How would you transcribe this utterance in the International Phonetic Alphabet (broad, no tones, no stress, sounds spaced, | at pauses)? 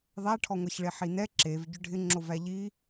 ðˤ æ ʈʰ ɔ ŋʷ ɛ ç ɭ e ħ i n ɛ ǁ e v ɟ ʏ ɖʱ ɪ ŋ͡ǁ o v æ ʎ i